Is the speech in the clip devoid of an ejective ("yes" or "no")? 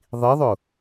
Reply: yes